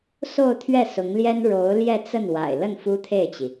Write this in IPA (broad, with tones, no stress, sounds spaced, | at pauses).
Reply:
s o˥˧ ʊ̯ t̪ʰ ɥ ɛ˥˩ s ʊ˧˥ ŋ l j ɛ˥ n ɻ o˧˥ ʊ̯ l j ɛ˥˧ t͡s ə˥˩ n w a̰˨˩ ɪ̯ l ə˥˩ n f u˥ t̪ʰ e˥˩ ɪ̯ t͡ɕ i˩